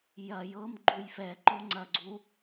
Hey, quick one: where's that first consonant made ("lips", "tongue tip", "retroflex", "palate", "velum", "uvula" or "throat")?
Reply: palate